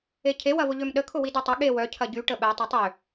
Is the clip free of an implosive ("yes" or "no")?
no